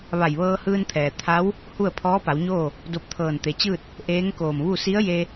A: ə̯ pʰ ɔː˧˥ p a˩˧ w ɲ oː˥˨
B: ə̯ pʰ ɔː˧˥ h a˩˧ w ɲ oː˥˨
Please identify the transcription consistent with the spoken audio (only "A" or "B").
A